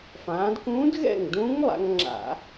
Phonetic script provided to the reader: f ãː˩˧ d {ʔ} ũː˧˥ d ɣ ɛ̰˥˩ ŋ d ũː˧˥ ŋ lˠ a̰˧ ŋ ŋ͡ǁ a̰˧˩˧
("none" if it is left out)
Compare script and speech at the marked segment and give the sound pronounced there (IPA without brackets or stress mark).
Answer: k